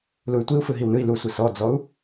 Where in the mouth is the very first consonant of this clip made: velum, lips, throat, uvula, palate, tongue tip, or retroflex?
tongue tip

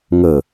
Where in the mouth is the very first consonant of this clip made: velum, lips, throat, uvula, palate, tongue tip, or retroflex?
velum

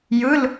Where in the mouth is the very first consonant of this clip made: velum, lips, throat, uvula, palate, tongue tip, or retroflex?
palate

